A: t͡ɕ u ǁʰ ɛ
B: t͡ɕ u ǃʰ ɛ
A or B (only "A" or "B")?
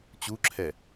A